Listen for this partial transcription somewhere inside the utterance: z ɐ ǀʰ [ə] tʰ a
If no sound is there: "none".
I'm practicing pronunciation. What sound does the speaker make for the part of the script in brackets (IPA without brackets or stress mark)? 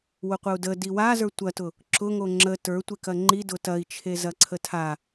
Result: ə